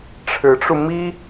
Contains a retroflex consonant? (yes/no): yes